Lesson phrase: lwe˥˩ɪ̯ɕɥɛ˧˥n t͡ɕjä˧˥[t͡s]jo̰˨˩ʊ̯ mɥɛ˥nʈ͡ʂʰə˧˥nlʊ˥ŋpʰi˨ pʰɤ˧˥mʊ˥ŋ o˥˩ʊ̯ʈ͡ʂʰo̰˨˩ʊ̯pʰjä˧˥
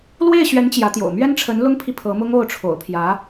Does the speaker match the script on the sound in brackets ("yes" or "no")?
no